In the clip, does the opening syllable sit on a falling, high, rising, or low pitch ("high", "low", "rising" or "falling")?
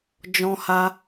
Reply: high